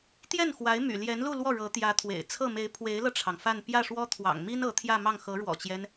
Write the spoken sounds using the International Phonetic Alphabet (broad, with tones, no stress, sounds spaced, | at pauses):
t̪ j ɛ˥˩ n x w a˧˥ ɪ̯ m y̰˨˩ l j ɛ˧˥ n l u˥˧ l w ɔ˥˩ ɻ ɤ˧˥ t̪ j ä˧˥ t̪ʰ w ḛ˨˩ ɪ̯ t͡sʰ ɤ˥˩ m e˧˥ ɪ̯ pʰ w e˧˥ ɪ̯ l ɤ˧ ʈ͡ʂʰ ɑ˩ ŋ f a˥˧ n p j ä˥˩ ʂ w ɔ˥ t̪ʰ w ɑ̰˨˩ ŋ m i˥ n ɤ˧˥ t̪ʰ j ä˥˧ m ɑ˥˩ ŋ x ɤ˧˥ ɻ w ɔ̰˨˩ t͡ɕ j ɛ˦ n